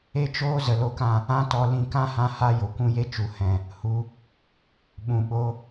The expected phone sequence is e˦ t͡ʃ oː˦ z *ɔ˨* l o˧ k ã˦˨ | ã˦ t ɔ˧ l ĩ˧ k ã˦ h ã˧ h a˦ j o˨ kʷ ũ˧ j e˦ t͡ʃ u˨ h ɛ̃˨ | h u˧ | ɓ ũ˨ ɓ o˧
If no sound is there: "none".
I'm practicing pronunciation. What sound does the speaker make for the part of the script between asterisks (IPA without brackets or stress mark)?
ə˨